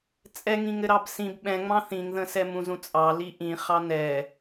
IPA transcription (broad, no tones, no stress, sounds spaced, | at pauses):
t͡sʼ ɛ ŋ ĩ ŋ ɘ ɾ ɑ b s ĩ b ɓ ɛ̃ ŋ͡m ɑ̃ θ ĩ ŋ ð ə̃ s ɛ m ũ z ũ t͡sʼ ɑ l i ʔ ĩ χ ɑ n ɛ